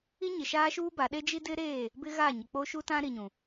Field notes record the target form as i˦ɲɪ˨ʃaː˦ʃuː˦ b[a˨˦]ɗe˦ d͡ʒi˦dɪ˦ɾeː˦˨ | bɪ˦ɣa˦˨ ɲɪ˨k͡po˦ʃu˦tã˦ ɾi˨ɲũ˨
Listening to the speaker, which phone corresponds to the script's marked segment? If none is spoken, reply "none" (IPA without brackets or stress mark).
a˨˦